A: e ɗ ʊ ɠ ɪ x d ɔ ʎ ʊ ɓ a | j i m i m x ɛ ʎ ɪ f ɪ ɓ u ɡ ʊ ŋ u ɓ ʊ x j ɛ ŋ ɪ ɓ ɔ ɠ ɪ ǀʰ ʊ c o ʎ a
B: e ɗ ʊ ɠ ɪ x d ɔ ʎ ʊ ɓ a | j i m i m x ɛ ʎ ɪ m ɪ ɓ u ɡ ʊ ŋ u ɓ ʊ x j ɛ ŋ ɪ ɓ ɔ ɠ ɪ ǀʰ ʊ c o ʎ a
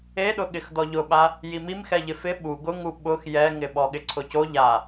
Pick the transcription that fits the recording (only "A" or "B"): A